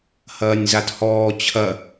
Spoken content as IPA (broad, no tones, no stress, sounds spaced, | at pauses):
h ɐː nʲ z a t h ɔː t͡ɕʰ ɐ